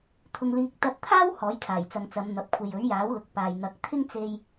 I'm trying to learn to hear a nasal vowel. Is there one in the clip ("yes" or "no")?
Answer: no